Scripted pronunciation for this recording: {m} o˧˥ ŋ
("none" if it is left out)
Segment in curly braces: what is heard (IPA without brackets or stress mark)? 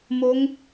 m